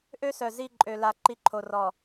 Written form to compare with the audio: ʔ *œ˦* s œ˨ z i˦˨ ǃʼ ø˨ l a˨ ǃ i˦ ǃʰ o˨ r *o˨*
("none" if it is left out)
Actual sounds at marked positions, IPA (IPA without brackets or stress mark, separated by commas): ø˦, ɔ˨